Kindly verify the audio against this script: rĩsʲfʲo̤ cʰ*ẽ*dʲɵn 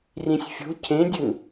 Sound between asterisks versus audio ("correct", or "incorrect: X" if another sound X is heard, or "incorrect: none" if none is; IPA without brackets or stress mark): correct